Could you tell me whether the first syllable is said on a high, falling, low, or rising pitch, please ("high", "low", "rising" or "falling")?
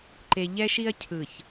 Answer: low